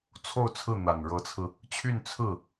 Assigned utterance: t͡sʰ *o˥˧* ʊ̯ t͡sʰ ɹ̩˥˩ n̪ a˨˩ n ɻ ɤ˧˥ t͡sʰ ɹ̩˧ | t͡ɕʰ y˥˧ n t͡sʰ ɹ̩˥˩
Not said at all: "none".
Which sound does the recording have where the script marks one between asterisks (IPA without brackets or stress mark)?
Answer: o˥˧